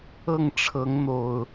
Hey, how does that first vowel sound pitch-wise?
falling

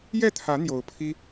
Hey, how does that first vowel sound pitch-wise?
falling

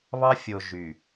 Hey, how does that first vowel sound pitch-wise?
high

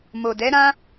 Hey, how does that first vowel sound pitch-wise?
low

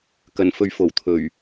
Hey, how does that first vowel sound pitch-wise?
low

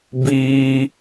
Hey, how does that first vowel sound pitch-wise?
high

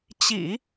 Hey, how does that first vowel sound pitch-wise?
low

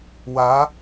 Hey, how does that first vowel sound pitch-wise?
rising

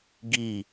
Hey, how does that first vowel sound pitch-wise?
falling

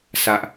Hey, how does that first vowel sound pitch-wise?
high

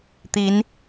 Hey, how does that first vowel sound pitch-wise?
rising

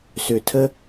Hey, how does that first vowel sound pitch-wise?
low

